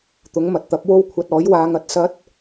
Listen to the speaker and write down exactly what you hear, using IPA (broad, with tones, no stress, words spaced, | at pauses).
t̪ʊ˨˥ŋmɐ˨t̚t̪ɐ˨˥p̚ wo˥wkʷʰɐ˧t̚ ɔː˨˥jwaː˧ŋɐ˨t̚ sɐ˥t̚